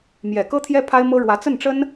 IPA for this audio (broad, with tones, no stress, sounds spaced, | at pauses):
m j ɛ˨˩ k ɤ˥ t̪ʰ j ɛ˥ pʰ a˥ ɪ̯ m ɤ˥ ɻ w ä˧˥ t͡s ə˥˩ n ʈ͡ʂ ə˥ n